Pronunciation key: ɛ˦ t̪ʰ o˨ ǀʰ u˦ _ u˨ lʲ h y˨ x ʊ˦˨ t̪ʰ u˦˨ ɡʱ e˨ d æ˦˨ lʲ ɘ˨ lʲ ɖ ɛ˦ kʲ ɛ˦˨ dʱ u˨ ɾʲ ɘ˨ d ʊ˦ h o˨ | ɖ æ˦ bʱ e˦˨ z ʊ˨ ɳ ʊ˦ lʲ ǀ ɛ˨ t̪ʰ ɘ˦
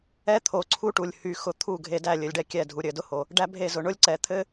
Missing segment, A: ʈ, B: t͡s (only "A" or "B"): A